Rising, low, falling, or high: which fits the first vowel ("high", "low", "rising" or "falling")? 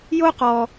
high